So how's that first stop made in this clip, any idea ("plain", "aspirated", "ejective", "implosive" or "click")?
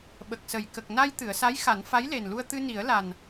implosive